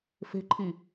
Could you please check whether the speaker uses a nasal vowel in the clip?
no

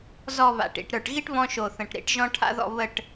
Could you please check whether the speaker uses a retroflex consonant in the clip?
yes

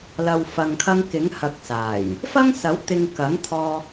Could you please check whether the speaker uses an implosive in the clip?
no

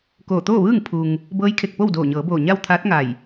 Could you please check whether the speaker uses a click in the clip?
no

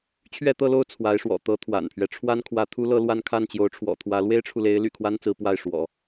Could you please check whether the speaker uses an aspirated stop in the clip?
yes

